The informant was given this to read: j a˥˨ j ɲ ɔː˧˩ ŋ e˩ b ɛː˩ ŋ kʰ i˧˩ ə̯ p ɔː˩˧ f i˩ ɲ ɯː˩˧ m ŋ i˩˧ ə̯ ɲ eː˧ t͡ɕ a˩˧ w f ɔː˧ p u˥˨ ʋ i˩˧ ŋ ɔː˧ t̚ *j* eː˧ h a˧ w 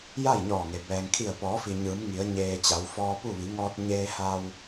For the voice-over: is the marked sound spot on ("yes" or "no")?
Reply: no